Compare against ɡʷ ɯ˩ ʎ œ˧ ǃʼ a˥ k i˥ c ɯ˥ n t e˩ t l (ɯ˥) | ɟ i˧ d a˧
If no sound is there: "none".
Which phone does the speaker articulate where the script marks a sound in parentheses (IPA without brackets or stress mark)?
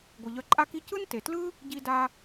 ɯ˥